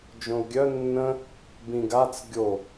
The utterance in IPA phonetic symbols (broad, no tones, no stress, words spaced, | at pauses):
d͡ʒõu̯ɡʲœ nːə̃ | bĩɡat͡s ɡʲo